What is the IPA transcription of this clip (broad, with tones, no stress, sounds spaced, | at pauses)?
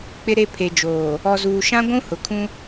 k͡p ɪ˦ ɾ e˦ pʰ e˨ d͡ʒ oː˨ | ɔ˨ z uː˨ ʃ ã˦ ɡʷ ũ˦ h ʊ˨ kʰ ũ˦